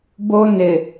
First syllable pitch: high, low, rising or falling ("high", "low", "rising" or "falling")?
high